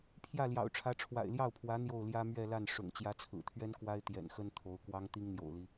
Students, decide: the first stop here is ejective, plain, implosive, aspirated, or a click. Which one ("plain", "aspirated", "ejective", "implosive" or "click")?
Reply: aspirated